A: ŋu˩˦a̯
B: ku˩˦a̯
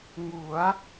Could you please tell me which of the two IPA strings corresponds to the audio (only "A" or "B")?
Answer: A